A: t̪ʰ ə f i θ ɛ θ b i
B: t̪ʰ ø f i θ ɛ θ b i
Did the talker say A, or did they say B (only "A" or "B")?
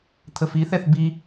A